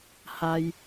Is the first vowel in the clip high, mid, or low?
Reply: low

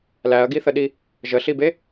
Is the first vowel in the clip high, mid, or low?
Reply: low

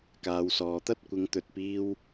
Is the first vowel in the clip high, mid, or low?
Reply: low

